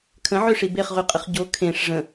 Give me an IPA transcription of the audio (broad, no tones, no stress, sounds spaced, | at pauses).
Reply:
kʰ ə̃ ʕ ø ʂ i b e χ ʁ y qʼ ə χ ɟ o kʰ ẽ ʂ ʐ ə̃